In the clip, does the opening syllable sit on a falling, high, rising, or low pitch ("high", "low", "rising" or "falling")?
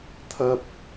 high